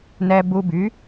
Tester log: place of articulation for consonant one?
alveolar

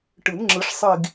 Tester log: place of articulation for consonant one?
retroflex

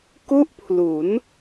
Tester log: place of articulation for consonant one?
velar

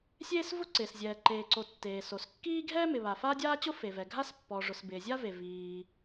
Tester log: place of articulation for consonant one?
alveolar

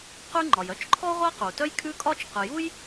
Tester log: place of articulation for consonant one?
uvular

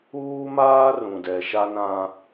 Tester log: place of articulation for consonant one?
labial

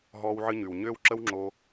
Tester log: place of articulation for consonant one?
glottal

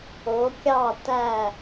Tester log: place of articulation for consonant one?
velar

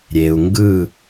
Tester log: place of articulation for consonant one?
alveolar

